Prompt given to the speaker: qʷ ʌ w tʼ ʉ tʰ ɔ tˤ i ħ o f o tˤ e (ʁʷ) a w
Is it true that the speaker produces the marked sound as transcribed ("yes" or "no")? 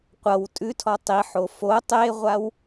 yes